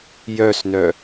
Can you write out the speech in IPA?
jœsnœ

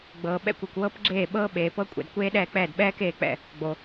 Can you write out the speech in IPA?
ɡ͡bɤː˨ɓɛ̰˥˩kʷ e˨kʷwɤ˦˥p ɡ͡ǁeː˥˩ ɓɤː˦˥ɓeː˨pɤ˦˥ kʷʼɛ̰˨d kʷeː˦˥ɗɛː˥˩k͡pɛː˥˩d ɓɛː˦˥keː˥˩k͡pɛ̰˥˩ | ɡ͡bo˨

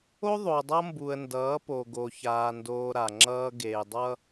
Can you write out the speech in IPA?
o˦ðˤo˨dˤʌ˦ mbu˨ə̯ndʌː˨˦po˨ ɡo˨çaː˨ndoː˨ ɾa˨ŋ͡ǁʌː˦ ɡe˨dˤʌ˦

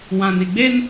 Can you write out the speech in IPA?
wã˨n i˨ɡ͡be˦n

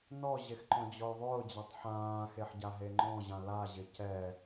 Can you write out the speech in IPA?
nɔʑexǃɔ̃d͡ʑɔj ðˤʊːd͡ʑatˤ ħãːxeħ ɟaɦeŋ͡ǃɔ̃ʑã laʑɪ cɛ

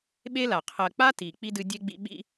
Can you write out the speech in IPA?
ɓe˥la˩ qʰɜ˨k͡pa˥ti˩ k͡pi˥dɨ˦dʲe˥ɡ͡bḭ˦ ɓḭ˦

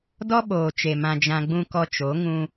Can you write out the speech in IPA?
dɔ˦ɓoː˨t͡ʃe˨ mã˧d͡ʒã˧ɡ͡bũ˦ kɔ˧t͡ʃo˨˦ ŋũ˧

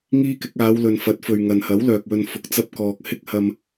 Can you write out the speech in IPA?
ŋiː˥kɪ˨˥k̚ aː˨˧wlɵ˨n fɐ˨˥t̚fɵ˨ɥ ŋɐ˨nhɐ˨˥w lœː˨k̚wɵ˧n fʊ˧k̚t͡sɐ˥p̚kɔː˧k̚ hɪ˥k̚hɐ˧m

